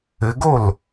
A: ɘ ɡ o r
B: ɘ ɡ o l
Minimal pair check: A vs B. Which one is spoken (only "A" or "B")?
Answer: B